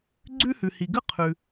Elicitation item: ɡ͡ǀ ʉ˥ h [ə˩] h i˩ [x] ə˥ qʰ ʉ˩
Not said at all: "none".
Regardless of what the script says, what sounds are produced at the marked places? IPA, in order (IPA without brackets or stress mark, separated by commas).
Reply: ʉ˩, ɡ